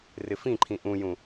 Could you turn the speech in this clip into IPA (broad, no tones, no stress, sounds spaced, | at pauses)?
r ɪ f ĩ ǃʰ ĩ ʔ ũ j ũ